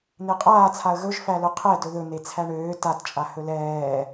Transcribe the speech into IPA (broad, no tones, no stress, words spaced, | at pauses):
n̪eqʼaːt͡sʰaə̯ ɣɵʒfælɵ qʰɛdɵ ðɵ n̪et͡sʰæɳøː tatt͡ʃʼa hɵlɛː